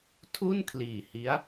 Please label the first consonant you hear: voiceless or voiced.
voiceless